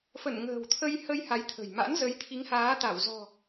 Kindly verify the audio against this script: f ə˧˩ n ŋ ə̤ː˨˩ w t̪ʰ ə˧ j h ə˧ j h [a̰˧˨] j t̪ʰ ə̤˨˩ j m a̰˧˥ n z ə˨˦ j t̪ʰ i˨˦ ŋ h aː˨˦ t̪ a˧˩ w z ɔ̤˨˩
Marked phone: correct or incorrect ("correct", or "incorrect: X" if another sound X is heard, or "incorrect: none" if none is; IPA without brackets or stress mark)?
incorrect: a˨˦